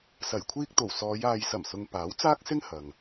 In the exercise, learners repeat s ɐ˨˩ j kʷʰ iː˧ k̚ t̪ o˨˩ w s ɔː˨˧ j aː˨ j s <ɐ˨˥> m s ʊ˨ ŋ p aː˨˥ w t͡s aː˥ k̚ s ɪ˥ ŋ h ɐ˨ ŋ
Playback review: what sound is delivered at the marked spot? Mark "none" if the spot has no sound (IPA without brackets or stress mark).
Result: ɐ˨˩